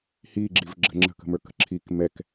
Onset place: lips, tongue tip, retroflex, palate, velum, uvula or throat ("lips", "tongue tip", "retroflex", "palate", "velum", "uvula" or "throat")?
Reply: throat